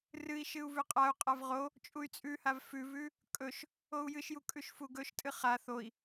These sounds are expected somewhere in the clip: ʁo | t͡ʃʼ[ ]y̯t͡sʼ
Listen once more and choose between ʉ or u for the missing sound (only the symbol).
u